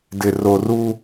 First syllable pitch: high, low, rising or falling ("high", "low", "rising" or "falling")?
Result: low